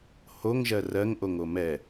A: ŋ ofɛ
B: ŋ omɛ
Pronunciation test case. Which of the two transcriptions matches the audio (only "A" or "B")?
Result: B